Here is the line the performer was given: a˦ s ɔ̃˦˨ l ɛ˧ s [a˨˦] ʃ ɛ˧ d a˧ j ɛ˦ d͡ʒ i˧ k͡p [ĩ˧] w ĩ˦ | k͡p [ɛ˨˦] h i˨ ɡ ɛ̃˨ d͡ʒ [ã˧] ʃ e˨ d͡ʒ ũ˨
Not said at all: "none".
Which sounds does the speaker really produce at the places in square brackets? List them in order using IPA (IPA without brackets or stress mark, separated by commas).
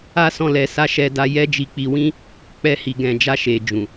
a˧, i˧, ɛ˧, a˧